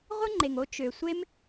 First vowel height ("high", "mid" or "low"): high